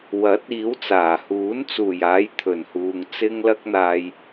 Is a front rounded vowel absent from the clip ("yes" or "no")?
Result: yes